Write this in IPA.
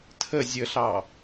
tʰ ə zʲ ə ɬ ɑ

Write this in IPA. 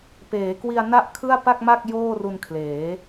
p eː˩˦ k w i˧ a̯ n a˥˩ ʔ kʰ ɯ˥˩ a̯ p a˥˩ k̚ m a˥˩ k̚ j oː˥˩ r u˧ n kʰ l eː˩˦

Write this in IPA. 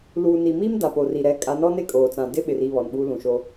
l uː˨ n i˨ m i˦ m d a˨ p o˨ r i˨ ɾ ɛ˨˦ kʼ a˨˦ n ɔ˦ n e˦ kʼ oː˨ t͡s ã˨ d ɪ˦ ɓ ɪ˨ r i˦˨ β ɔ˨ n ɓ uː˦ l ũ˨ ʃ o˦

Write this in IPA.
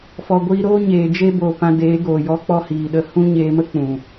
f ɔ˨ ɡʷ iː˧ ɾ oː˦ ɲ eː˨ d͡ʒ e˦ b oː˨ p ã˧ d eː˨˦ ɡ oː˨ j ɔ˦ k͡p ɔ˦ h iː˨ ɗ ə˧ h ũ˦ ɲ eː˧ m ə˦ k͡p ũ˨

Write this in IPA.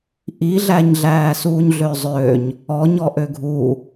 ʔ i ɮ æ ɲ ɮ æː s uː ɲ ɮ ø zˤ ø ɲ | ɔ ɲ ɔ ʔ ø ɡʱ u

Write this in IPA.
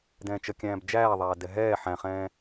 d ɛ̃ː t͡ʃ ə kʲ æ̃ː b d͡ʒ æː ðˤ æː d ɛ ɦ ɛː ħ æ̃ χ ɛ̃ː

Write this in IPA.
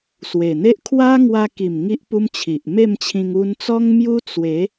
s w e˨˩ n̪ e˦ ʔ kʰ w a˦ ŋ w a˧ k i˨˩ m ŋ i˦ ʔ p u˦ m t͡ɕʰ i˨ ʔ m e˥˧ m t͡ɕʰ ĩ˧ ŋ u˧ n t͡s ɔ˦ ŋ m j u˦ t͡s w e˨˦

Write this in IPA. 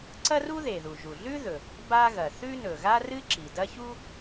ǀ ɐ˥ r u˥ ð e˩ ð u˩ ʒ u˩ ɮ ʉ˥ ð ɵ˩ | b a˥ ɣ ɐ˩ θ ʉ˥ n ɵ˩ ɣ a˥ r ɨ˥ ǁ i˩ d ɐ˥ ç u˥

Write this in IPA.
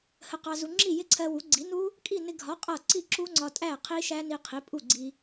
h ə˧ q ɑ˧ z u˧ ŋ͡ǁ i˥˩ j ɪ˦˥ ǀʰ ɜ˧ w u˩˥ ɡ͡ǀ i˩˥ n u˦˥ | kʼ i˥˩ n ɪ˧ ɡʱ ɒ˩˥ qʼ ʌ˥˩ ǀ i˥˩ ǁ u˦˥ ŋ͡ǀ ɒ˧ tʼ æ˥˩ qʰ i˦˥ ʃ æ˦˥ n i˧ qʰ i˩˥ pʼ u˥˩ ɡ͡ǀ i˧

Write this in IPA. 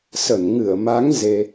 s ə˧˩ n ŋ ɨ˧˩ ə̯ m a˨˦ ŋ z e˧

